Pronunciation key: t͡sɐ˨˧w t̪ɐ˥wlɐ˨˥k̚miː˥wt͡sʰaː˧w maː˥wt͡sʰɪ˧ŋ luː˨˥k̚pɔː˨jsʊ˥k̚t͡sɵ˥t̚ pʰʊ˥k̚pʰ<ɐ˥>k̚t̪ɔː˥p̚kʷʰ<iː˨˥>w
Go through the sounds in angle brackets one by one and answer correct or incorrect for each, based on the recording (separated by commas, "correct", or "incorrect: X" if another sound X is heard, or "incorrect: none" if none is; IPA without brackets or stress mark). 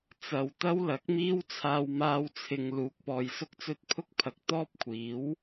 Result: incorrect: ɐ˨, correct